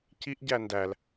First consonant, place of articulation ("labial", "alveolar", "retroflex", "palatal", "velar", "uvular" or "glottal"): palatal